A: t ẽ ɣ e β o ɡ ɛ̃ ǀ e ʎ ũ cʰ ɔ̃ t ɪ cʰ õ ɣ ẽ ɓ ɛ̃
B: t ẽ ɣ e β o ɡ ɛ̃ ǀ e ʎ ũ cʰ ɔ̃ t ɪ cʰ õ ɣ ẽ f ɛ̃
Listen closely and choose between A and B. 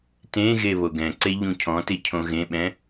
A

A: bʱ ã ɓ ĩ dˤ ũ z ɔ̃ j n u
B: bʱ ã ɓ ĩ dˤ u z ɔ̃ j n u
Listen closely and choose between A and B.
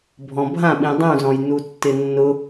A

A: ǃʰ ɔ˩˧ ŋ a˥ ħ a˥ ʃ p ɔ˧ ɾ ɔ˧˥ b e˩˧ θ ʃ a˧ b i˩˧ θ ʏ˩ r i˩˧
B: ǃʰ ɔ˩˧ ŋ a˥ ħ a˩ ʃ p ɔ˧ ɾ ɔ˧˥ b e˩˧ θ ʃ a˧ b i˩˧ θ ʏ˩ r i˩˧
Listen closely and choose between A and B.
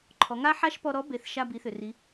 A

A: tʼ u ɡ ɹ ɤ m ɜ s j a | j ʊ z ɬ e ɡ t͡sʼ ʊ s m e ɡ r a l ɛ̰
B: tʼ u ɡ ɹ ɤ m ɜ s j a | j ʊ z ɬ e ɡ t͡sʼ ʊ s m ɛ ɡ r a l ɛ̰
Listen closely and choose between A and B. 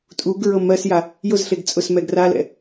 B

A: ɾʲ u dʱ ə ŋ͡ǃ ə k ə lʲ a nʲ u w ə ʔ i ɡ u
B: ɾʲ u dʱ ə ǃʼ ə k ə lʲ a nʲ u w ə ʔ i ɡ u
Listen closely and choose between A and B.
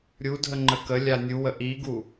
A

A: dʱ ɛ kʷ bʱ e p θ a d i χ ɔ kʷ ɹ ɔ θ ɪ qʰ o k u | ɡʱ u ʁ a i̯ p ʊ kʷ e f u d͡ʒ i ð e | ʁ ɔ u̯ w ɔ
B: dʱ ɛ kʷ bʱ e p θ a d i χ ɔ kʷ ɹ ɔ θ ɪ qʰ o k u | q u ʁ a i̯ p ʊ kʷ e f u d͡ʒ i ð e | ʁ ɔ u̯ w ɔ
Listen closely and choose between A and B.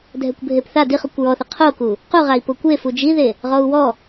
B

